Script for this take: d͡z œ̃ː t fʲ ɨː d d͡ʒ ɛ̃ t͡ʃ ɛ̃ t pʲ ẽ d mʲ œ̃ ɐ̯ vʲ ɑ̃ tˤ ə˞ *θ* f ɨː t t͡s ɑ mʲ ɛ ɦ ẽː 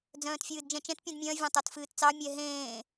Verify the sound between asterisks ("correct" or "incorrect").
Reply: incorrect